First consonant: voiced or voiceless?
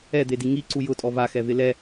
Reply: voiced